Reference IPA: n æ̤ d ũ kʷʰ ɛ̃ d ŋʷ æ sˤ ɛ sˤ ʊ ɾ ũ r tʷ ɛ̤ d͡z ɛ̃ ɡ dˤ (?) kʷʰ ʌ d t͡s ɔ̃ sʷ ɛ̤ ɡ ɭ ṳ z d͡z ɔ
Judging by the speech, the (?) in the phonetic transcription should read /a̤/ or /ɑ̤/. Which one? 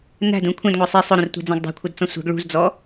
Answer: ɑ̤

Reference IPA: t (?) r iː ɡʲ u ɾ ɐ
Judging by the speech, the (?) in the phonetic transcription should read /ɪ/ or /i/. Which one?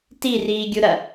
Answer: i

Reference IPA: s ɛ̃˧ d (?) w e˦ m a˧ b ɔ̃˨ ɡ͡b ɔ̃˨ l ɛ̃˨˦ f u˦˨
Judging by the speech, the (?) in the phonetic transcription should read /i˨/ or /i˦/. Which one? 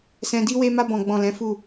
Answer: i˦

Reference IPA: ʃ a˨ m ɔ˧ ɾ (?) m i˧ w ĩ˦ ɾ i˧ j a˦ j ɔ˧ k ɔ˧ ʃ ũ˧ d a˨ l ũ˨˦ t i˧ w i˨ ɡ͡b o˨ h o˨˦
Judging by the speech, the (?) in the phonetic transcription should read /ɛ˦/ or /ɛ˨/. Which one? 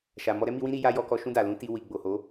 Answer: ɛ˦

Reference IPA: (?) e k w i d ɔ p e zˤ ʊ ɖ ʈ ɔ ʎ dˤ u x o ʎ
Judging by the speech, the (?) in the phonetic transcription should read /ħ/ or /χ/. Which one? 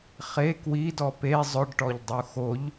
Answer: χ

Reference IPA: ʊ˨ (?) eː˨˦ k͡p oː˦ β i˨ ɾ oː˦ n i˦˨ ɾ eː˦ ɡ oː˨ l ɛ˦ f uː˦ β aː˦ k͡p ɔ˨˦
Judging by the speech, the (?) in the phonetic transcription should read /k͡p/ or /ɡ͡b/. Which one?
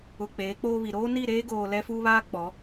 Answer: k͡p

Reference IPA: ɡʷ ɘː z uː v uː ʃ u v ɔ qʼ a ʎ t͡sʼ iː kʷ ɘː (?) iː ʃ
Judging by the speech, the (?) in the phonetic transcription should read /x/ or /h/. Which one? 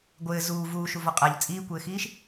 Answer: x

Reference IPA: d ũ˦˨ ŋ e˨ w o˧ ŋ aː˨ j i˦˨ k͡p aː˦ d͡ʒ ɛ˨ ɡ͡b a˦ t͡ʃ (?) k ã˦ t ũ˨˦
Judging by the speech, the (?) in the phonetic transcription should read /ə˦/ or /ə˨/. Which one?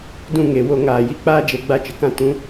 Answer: ə˨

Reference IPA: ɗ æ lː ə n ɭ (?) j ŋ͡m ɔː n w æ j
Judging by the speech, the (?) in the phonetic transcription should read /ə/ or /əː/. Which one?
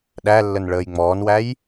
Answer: əː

